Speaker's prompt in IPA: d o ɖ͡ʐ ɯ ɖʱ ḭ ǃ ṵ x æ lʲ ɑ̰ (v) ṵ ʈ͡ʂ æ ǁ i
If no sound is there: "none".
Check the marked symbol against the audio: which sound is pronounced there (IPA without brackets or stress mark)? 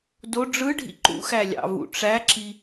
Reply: v